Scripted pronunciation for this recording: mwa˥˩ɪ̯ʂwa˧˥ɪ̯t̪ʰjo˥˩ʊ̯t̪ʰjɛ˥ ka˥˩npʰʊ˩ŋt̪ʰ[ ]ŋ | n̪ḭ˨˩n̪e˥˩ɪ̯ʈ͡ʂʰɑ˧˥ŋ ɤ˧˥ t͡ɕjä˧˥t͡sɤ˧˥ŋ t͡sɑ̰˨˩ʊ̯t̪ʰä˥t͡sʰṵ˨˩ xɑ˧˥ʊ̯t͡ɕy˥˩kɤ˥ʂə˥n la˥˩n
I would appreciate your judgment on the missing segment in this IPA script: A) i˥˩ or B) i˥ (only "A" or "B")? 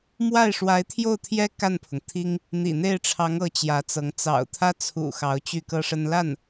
B